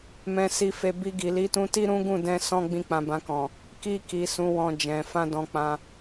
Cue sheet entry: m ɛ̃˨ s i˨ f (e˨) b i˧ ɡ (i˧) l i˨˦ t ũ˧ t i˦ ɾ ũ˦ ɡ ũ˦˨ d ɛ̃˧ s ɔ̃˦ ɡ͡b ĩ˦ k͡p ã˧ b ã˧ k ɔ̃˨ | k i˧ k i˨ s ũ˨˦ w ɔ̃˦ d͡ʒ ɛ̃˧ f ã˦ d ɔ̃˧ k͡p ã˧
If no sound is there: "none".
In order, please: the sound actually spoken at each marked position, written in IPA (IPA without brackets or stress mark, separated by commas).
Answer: e˨, i˨